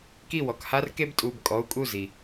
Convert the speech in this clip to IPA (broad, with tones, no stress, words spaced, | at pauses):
ki˥˩wɔ˩k ha˥rke˥btʼu˩˧˩b kʼɔ˩˧˩u̯kʼu˥˩ zi˩